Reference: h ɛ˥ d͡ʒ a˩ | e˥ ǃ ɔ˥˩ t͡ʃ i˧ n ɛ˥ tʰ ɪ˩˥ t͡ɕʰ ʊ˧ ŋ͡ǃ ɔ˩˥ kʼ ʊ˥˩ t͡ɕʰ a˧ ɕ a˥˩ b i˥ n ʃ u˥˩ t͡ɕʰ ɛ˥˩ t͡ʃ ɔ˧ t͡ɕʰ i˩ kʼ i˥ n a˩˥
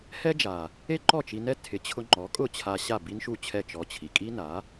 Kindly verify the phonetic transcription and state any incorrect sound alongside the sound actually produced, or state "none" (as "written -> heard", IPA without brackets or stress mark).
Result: none